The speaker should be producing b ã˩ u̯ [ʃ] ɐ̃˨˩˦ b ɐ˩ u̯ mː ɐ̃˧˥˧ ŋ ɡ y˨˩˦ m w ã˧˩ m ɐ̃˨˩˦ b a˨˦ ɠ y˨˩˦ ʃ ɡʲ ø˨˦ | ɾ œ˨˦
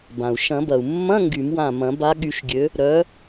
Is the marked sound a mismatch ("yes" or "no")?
no